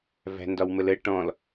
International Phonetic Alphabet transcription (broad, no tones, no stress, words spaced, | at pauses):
væ̤ndɒwmələ ʈɔ̃l